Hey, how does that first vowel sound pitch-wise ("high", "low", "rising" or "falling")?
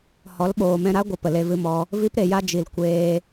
rising